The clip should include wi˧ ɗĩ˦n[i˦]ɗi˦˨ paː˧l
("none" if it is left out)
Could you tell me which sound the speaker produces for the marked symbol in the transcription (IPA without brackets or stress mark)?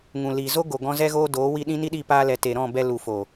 i˦